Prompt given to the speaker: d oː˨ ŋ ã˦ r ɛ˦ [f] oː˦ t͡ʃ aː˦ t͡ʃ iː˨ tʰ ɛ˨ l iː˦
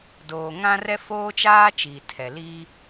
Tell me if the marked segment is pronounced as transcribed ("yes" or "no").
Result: yes